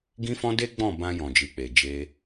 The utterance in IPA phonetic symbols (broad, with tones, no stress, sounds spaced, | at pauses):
ɡ ĩ˦ f ɔ̃˦ d e˦ ɡ͡b ɔ̃˦˨ b ã˧ j ɔ̃˨ d͡ʒ i˨ k͡p e˨ d͡ʒ e˧